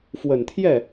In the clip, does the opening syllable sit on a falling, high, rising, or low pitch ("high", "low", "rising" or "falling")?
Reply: low